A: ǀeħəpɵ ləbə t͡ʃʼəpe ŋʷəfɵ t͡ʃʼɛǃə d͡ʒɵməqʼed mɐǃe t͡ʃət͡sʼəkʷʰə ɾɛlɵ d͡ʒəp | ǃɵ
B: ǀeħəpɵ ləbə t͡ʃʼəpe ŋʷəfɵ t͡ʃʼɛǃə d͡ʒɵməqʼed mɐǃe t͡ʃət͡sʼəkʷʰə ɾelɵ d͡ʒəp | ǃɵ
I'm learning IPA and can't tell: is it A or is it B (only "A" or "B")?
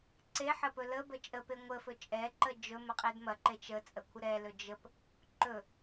A